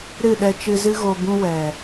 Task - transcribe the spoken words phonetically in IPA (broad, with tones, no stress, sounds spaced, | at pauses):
ɾ ɨ˦˨ ɗ ɛ˧ t͡ʃ ɨ˧ z ɨ˦ ɣ o˧ b ũ˦ w ɛ˨